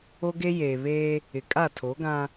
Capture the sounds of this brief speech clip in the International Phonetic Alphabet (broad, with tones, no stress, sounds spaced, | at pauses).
o˦ ɡ e˦ j eː˨ β eː˦ | ɪ˨ kʼ a˦˨ tʰ o˨˦ ɡ ã˦